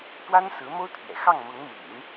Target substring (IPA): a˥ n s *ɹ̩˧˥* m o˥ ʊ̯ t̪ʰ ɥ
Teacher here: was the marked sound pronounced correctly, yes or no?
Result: yes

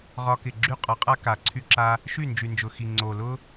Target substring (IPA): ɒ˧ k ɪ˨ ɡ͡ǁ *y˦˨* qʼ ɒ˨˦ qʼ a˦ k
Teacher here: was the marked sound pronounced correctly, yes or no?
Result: yes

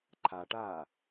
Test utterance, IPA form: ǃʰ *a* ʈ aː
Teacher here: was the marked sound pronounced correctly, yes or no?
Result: yes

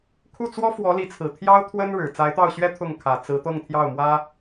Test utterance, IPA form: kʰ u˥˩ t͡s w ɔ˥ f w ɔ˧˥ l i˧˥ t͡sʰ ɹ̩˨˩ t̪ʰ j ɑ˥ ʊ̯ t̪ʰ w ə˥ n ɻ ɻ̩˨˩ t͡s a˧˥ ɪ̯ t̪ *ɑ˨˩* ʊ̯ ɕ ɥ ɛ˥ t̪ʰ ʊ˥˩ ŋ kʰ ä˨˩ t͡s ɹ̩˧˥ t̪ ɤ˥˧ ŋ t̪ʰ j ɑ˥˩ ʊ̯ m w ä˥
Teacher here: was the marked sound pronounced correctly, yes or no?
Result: no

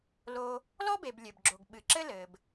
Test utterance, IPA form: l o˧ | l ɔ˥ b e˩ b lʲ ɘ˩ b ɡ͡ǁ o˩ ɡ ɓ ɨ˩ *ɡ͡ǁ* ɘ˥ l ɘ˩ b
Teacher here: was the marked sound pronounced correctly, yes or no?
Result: no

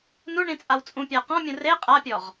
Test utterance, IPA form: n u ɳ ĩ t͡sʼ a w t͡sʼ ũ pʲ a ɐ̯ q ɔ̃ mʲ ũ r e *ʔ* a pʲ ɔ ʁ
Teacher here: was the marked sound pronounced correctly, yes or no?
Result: no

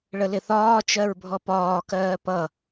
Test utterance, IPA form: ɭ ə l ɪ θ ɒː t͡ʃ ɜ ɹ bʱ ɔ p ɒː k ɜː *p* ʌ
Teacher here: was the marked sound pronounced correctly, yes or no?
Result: yes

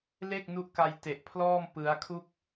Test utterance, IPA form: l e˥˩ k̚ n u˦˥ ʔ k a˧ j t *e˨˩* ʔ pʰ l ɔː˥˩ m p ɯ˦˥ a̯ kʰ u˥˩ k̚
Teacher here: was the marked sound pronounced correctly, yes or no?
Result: yes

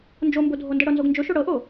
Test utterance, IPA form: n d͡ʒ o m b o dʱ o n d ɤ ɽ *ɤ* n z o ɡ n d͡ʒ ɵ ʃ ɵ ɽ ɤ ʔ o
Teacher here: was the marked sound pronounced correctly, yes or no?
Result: yes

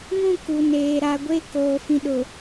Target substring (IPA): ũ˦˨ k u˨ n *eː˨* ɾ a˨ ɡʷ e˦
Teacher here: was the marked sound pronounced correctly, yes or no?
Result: yes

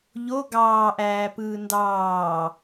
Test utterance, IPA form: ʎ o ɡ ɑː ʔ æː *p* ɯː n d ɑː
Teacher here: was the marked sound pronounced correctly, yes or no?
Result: yes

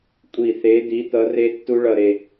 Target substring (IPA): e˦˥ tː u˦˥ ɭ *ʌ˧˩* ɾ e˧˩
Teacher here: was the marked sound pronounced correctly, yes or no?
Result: yes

